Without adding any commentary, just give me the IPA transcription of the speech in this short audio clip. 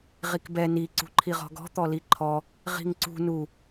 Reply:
ʁ i k b ɛ n i ǀ ṳ ǃʰ i ʁ ɔ̤ ɡ ɔ̤ t̪ ɔ l i ǃʰ ɔ | ʁ i̤ ŋ ǀ ṳ n u

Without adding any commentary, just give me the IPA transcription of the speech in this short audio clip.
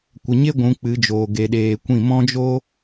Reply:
kʷ ə˨ ɲ e˦ ɡʷ ũ˨˦ k͡p ɨ˨˦ d͡ʒ oː˨ ɡ e˨ ɗ eː˨ kʷ ĩ˦˨ m ɔ̃˦ d͡ʒ o˦

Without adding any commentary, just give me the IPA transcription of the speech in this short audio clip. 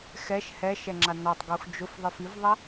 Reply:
x ɛ ʃ h ɛ ʃ ɛ ŋ͡ǁ a n ɔ tˤ ɡ u x d͡ʒ ʊ f ðˤ i f i v ðˤ ɛ

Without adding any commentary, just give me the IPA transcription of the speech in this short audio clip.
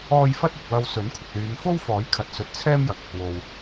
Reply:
ɔː˥ j f ɐ˥ t̚ ɪ˨ k̚ w ɐ˧ w s ɵ˨˥ n kʷʰ ɪ˨ k̚ l yː˨˧ m f o˥ w f ɔː˨˥ j kʰ ɐ˧ t̚ s ɵ˧ t̚ t͡sʰ ɛː˥ m j ɐ˨ k̚ | w o˨ w

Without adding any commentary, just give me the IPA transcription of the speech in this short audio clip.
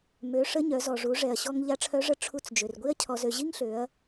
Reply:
m ø˩˧ ʂ ə˧˥ ɲ œ˩˧ z ɔ˩ ʐ u˩˧ ʐ ɛ˩ ɐ̯ ɕ ɔ˧ ŋ ʎ a˧˥ ʈ͡ʂʰ œ˧˥ ʐ ə˧˥ ʈ͡ʂʰ u˧ t͡s d͡ʒ ø˩ r ɡʷ i˥ ɐ̯ cʰ ɔ˧ z ø˧ ʑ i˥ ŋ ɬ ø˩˧ ɐ̯

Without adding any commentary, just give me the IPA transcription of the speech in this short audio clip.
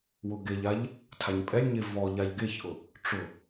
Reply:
w ʊ ɡ e ʎ a ʎ | tʰ a ɲ pʼ ɛ lʲ ɲ e v ɔ ʎ a ʎ ɡ e ç ʔ ʊ | ʈ͡ʂ ʊ

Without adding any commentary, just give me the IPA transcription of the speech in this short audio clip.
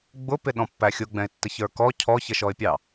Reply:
ɡ͡b ʊ p ɪ ɗ ɔ̃ pː æ xʲ ʊ ɡ͡b ɛ̃ ɪ̯ tː ə ç ə˞ k ɔ cʰ ɔ ç ə ʃ ɔ ɪ̯ pʲ ɑ

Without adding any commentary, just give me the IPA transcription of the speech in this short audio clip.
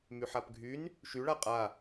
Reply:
m y ħ a p ɡʱ y n | ʃ y ɭ a qʼ a

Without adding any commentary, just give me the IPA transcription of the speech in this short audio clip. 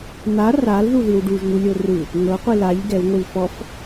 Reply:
n̪ a r a l ð u ð i w ɖ u ʒ ŋ u lʲ o r ɯ | ŋ ɤ qʷ i l a ʎ ɡ ɛ w ŋʷ i l f ɔ f

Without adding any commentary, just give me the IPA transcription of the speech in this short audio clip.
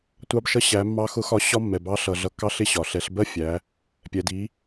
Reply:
tʷ ɑ˧ b ʃ ʌ˧˥ ɕ æ˩˧ mː ɑ˧ x ʊ˧˥ x ɒ˧ ɕ ɒ˥ mː ɛ˩ b ɑ˧˥ ɬ ʌ˩ ɮ ʌ˩˧ kː ɑ˧ ɬ ɪ˥ ɕ ɒ˩ ɬ ɛ˩˧ ɬ b ɜ˥ fʲ æ˩˧ | pʲ ɛ˩ d i˩˧

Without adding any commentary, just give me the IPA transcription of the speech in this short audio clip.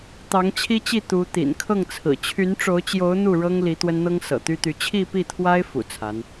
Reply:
t̪ ɑ˧˥ ŋ t͡ɕʰ i˥ t͡ɕ i˥˩ t̪ u˧˥ t̪ ḭ˨˩ n kʰ ɤ˥˩ ŋ t͡sʰ ɹ̩˨˩ t͡ɕʰ y˧˥ n ʈ͡ʂ o˧˥ ʊ̯ t͡ɕ j o˧˥ ʊ̯ n̪ u˥˩ ɻ ɤ˥ ŋ l i˧˥ t̪ w ə˥ n n̪ ɤ˥ ŋ s ɤ̰˨˩ t̪ y˥ t̪ y˧˥ t͡ɕʰ i˥˧ p i˥˩ t̪ʰ w a˥ ɪ̯ f ṵ˨˩ t͡sʰ a˧˥ n

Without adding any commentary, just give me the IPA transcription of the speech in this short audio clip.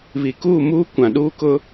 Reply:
β i˨ k uː˦˨ m uː˦ kʷ ã˨ ɗ uː˦ k ʊ˦

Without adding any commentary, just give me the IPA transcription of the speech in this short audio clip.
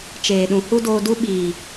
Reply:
t͡ʃ eː˨ ɗ ũ˨ h u˦ d oː˧ d u˦ ɓ iː˨

